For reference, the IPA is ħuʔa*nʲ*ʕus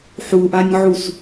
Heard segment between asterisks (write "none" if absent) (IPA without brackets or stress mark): nʲ